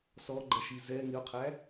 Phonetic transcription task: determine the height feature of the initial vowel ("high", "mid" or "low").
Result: mid